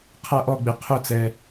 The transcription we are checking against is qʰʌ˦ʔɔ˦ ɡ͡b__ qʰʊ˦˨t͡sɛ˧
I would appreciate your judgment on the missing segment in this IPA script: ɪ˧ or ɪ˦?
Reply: ɪ˧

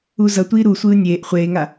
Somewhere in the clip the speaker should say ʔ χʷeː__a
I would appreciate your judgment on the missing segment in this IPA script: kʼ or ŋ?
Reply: ŋ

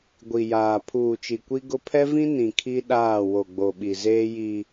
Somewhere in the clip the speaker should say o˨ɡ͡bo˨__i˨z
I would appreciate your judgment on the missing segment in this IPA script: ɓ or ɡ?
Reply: ɓ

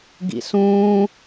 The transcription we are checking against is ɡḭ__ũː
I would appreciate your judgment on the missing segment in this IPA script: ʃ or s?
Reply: s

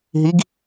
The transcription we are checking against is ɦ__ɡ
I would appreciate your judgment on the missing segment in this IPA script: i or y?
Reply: i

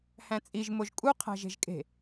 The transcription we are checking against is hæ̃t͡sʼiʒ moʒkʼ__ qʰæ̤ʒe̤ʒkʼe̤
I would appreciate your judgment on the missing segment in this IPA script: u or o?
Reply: u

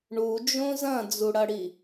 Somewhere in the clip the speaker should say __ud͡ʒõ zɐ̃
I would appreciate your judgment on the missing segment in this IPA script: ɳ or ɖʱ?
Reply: ɳ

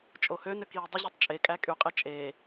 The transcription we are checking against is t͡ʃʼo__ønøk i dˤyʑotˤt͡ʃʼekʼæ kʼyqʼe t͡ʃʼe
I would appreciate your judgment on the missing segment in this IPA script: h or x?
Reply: h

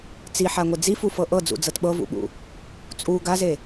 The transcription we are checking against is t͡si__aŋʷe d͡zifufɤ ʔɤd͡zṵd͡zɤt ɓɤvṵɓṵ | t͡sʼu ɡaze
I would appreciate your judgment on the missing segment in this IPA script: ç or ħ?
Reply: ħ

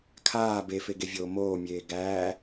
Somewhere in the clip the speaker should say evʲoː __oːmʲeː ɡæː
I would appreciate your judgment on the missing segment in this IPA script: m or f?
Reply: m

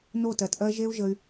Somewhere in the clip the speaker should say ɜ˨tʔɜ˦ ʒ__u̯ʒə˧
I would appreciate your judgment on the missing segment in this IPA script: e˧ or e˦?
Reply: e˦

